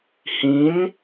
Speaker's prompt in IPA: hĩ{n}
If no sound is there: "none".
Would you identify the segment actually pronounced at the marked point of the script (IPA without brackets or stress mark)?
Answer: n